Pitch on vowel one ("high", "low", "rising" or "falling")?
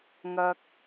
low